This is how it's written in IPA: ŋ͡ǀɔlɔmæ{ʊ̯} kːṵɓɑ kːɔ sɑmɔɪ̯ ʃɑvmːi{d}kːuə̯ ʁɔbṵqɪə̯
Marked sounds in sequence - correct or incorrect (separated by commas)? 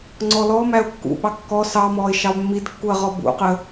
correct, correct